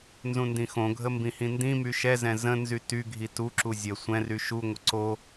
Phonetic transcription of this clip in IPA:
n z ũ n d ĩ x õ ɡʱ ə m b ĩ h ĩ n d ĩ m y ʃ ɛ z ɛ̃ z ə̃ n z y t y ɡʱ i t u ǁ u zʲ ə sʷ ɛ̃ r y ʃ u ŋʷ ə ǀ o

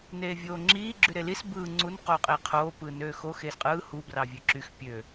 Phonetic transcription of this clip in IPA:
n eː vʲ oː ŋ͡ǁ iː ɡ͡ǁ y ɾ e l i s b ɯː ŋ͡ǀ u n q oː qʼ eː qʰ oː p ɯː n øː x o x eː s qʼ ɯː h u b r ɑ vʲ ø ǁ y x pʲ ø

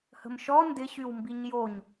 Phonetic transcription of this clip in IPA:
h ə̤ m ʃ ɔ n d ɪ ɕ y w m b i ɲ j o ɲ

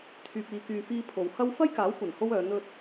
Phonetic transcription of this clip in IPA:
t̪ʰ yː˨ p̚ iː˨ k yː˨ f iː˧ pʰ o˨ w h ɐ˥ w f ɐ˥ j k aː˨˥ w kʷ ɐ˨˩ n h o˧ w œː˨˧ n̪ ɵ˧ t̚

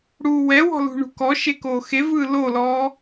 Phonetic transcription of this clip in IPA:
ɽ uː w ɛ w ɔ̤ l ṳ ɳ ṳ k ɔ ʃ e k oː x e v ɯː l o l ɔː

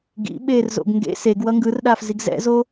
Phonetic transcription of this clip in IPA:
ɡ ḭ ɓ eː r z o̰ ɡ ŋ ɡ ḛ s e ɡ w ʌ ŋ ɡ ɯ r ɗ aː f z i ɡ z ɛ̰ z o

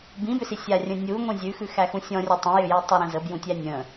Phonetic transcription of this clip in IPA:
b ĩ b ʏ s i sʲ a rʲ ə̃ nʲ u ŋʷ ĩ zʲ ʉ x ʉ x æ x ũ sʲ ɔ̃ rʲ ə tˤ ə̃ j ʏ j ɛ tˤ ʏ ɾ ə̃ z ə b j ũ tʲ æ nʲ ə̃

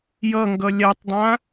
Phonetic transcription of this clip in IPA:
j ʌ ŋ ɡ ʌ lʲ a tˤ dˤ ã

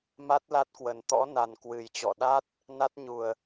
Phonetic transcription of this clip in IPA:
m a˦˥ t̚ l a˦˥ t̚ k w ə˨˩ n t̪ ɔ̰˧˥ n a˨˩ n k w ɨ˨˩ j t͡ɕ ɔ̰˧˨ ɗ a˦˥ t̚ | n a˦˥ t̚ ɲ u˨˩ ə̯

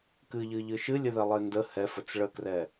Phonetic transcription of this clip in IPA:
k ɨ ʎ ɨ ʎ ɨ ʃ ɨ lʲ ə ð ɛ lˠ e n d ə h ɛ f ə t͡s ɭ ə k r ɛ

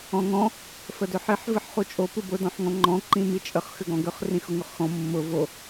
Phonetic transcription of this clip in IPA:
ɔ̃ ŋ ɔ̃ | f ə d ʏ ħ i ħ v ɨ ħ χ u t͡ʃʼ o p ɨ b ʊ d ɔ̃ ħ ŋ ɔ̃ ŋ͡ǃ ɔ̃ ǃ ĩ m i t͡ʃʼ ə χ x ʏ ɡ ɔ̃ ɡ ʏ χ r ĩ x ʊ ŋ ʊ χ x ɔ̃ mː ʊ v o

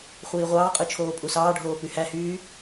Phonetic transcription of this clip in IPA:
χʷ iː ʁʷ ɑː qʼ ɯ t͡ʃʰ oː pʼ u s ɑː ɖʱ oː p y h æ h yː

